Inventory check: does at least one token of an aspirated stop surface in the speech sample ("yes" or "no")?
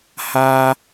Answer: no